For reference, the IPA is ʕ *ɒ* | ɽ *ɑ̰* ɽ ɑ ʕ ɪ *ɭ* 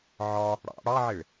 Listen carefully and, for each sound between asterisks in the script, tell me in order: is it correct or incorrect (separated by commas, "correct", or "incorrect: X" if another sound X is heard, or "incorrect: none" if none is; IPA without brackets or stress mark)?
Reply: correct, correct, correct